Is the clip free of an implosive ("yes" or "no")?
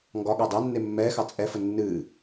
no